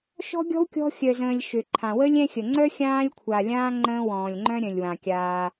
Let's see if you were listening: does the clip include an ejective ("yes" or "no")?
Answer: no